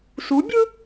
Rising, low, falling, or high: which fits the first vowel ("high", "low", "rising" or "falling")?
rising